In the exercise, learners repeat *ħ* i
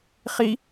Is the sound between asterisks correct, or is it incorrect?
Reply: incorrect